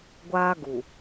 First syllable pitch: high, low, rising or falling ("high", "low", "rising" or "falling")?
high